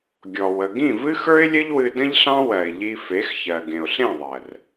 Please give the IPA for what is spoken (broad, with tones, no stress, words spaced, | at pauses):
ɡʲɔ˨wə˨ ɡĩ˦˨vɨ˦xə˞˦ɪ̯lʲə˦ʎ wɨ˧də̃˦ʎɬɑ̃˦ wɜ˨ɪ̯ʎi˧ fe˨˦x çɜ˨ɡẽ˨ʊ̯ɬẽ˦˨ðˤɜ˨r